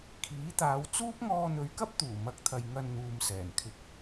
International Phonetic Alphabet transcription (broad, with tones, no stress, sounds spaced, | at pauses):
kʰ iː˨˥ t̪ aː˨˧ w t͡s uː˥ p̚ ŋ ɔː˧ n̪ ɵ˨˧ ɥ k ɐ˥ p̚ t̪ uː˨˩ m ɐ˨˥ k̚ t̪ʰ ɐ˨ j ŋ ɐ˧ n n̪ uː˨ m s ɛː˨˩ n kʰ ɪ˨ k̚